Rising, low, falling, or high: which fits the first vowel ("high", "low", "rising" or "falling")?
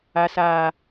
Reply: high